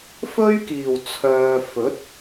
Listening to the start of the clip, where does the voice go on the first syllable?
high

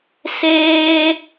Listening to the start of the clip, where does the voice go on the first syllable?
high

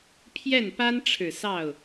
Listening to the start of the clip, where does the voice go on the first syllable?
falling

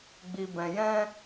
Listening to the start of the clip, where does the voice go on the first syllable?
low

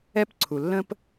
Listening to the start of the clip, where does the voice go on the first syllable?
high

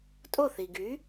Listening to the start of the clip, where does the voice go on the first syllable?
falling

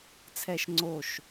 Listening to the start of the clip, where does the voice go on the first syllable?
high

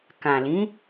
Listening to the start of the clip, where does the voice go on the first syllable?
low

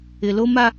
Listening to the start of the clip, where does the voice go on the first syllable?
low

